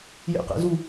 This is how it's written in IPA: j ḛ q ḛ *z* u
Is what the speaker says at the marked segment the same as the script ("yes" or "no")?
yes